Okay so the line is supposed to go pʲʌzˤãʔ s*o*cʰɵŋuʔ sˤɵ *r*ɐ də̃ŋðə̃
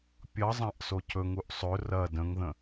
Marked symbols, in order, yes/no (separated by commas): yes, yes